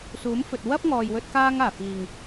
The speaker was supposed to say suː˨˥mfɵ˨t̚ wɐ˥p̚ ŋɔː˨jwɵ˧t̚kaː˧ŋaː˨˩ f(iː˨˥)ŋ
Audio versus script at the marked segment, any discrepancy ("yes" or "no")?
yes